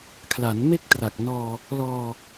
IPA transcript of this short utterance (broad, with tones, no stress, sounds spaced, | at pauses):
kʰ l a˩˦ n m e˥˩ k̚ t r a˨˩ k̚ n ɔː˧ | l ɔː˧